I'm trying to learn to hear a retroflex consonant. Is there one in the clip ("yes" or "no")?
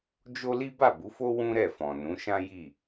no